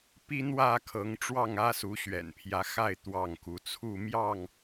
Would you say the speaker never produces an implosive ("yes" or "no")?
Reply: yes